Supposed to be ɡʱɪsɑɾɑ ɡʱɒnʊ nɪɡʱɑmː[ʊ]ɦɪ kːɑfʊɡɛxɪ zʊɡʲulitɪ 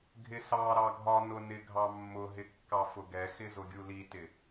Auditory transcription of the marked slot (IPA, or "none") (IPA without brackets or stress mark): ʊ